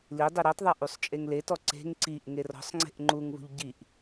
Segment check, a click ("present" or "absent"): present